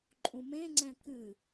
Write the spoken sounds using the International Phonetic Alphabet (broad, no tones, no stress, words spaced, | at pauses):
ǃʼũmẽŋ͡ǀɛ̃ kɨ